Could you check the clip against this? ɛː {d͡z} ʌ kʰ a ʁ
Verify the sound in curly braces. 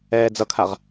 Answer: correct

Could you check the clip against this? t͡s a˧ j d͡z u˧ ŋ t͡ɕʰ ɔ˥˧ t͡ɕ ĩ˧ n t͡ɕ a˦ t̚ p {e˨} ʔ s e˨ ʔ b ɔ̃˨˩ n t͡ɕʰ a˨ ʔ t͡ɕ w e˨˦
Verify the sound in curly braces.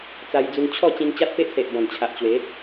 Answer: incorrect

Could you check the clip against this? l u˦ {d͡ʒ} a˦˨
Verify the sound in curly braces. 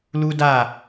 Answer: incorrect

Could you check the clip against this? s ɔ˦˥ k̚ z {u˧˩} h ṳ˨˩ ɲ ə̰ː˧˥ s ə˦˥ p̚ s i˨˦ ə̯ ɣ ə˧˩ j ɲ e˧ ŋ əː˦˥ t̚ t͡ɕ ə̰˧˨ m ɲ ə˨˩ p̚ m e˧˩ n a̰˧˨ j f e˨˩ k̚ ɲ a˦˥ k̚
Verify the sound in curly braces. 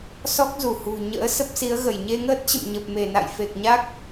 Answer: correct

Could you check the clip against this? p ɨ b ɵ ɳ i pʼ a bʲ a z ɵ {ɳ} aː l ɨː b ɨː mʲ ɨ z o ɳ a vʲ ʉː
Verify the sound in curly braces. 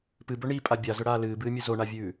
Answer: incorrect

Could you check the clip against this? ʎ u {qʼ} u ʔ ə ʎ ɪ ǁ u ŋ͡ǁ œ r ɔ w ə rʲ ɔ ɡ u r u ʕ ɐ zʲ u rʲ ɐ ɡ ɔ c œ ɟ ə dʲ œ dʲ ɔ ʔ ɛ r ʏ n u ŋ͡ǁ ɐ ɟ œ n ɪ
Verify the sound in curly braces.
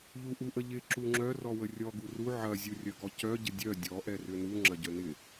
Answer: incorrect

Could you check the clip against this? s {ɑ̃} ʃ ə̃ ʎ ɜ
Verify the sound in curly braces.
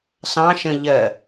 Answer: correct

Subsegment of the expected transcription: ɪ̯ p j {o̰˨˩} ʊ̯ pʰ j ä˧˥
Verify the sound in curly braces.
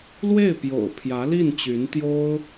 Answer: correct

